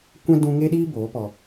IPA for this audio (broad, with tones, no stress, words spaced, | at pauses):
kʷɛ̃˦dũ˧ŋe˦ɗiː˦ boː˨˦pɔ˧